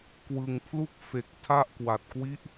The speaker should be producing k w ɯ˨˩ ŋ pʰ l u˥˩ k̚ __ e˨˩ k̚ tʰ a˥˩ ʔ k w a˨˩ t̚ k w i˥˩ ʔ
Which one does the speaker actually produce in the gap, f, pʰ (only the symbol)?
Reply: f